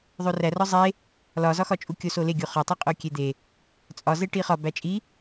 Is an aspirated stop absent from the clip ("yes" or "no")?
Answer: yes